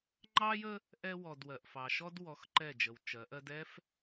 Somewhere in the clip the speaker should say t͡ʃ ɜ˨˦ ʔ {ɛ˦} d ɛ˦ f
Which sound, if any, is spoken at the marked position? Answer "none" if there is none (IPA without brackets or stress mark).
ɜ˦